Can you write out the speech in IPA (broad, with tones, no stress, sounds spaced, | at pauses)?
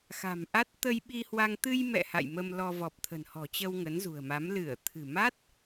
x a̤˨˩ m ʔ a˦˥ t̚ t̪ ə˧ j ɓ i˧ h w a˧ ŋ t̪ ɨ˧ j m ɛ̰˧˨ h a̰˧˨ j m ə˧ m l ɔ˧ v ɔ˨˩ p̚ t̪ʰ ə̤˨˩ n h ɔ̤˨˩ t͡ɕ ə˧ w ŋ ə˨˦ n z ṳ˨˩ ə̯ m a˨˦ m l ɨ˧˩ ə̯ t̪ʰ ɨ̤˨˩ m a˦˥ t̚